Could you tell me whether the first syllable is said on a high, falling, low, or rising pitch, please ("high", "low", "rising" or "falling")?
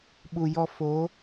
low